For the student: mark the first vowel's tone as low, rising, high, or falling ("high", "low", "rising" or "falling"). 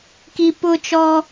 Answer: low